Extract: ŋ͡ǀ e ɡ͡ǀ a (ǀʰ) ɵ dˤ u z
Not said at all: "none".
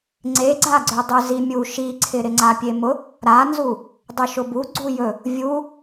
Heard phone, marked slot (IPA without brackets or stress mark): ɡ͡ǀ